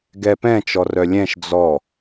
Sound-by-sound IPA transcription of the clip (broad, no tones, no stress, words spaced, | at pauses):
ɡɛpɛ̃ t͡ʃɔrœlʲɛ̃ʃ d͡zɔ